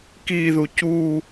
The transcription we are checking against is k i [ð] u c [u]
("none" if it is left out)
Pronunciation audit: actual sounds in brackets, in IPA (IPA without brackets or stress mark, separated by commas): ð, u